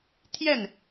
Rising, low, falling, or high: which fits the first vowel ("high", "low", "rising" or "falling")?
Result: falling